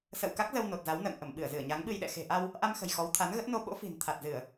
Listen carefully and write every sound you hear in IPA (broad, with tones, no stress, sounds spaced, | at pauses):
s ə̰ː˧˨ w k a˦˥ k̚ z ə˧ w n o˨˩ t̚ z a˨˦ w n ə̰ː˧˨ ŋ ʔ ə˧˩ m ɓ ɨ˧˩ ə̯ z ɨ˧˩ ə̯ ɲ a˨˦ ŋ ɓ ɨ˧ j ɗ ɛ̰˧˨ x e̤˨˩ ʔ a˧ w | ʔ a˧ m x ə̤˨˩ j x ɔ˨˦ w t̪ʰ a˨˦ n ɣ ə˦˥ t̚ n o˧ ɓ o̰˧˥ f i̤˨˩ n t̪ʰ a˨˩ t̚ z ɨ˧˩˨ ə̯